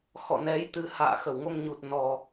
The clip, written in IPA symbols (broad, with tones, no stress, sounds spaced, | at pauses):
x ɔ̰˧˨ n ɛ˨˦ j t̪ ɨ˨˦ h a̰ː˧˨ x ə˧˩ w ŋ o˧ ŋ ɲ u˨˩ t̚ n ɔ˨˩